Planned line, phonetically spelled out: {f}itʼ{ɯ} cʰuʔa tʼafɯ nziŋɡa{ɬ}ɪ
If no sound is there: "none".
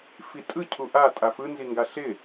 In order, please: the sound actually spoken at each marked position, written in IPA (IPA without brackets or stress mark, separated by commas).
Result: f, ɯ, ɬ